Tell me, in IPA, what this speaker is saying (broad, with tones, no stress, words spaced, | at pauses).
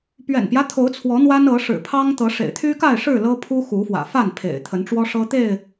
pɥɛ̰˨˩npjä˦ t̪ʰo˨˦ʊ̯t͡sʰwɔ˨˦ n̪wa˦nɤ˨˦ ʂɻ̩˨˩pʰɑ˦ŋt̪ɤ˨˦ ʂḛ˨˩ɪ̯t̪ʰy˦ka˥˨ɪ̯ʂɻ̩˥˨ lɤ˦pʰu˦ xu˨˦fwä̰˨˩fa˥˨n pʰḛ˨˩ɪ̯t̪ʰə˨˦nʈ͡ʂwɔ˦ ʂɤ˦t̪e˥˨ɪ̯